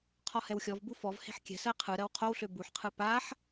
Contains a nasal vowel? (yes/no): no